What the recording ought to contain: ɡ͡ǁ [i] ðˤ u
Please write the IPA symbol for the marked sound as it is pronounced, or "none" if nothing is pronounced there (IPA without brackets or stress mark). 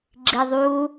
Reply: i